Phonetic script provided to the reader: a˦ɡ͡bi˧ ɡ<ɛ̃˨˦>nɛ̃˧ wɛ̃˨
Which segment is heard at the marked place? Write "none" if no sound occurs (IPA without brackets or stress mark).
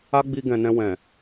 ɛ̃˨